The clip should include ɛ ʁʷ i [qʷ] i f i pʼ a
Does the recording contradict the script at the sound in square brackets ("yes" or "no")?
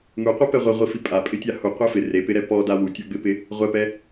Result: yes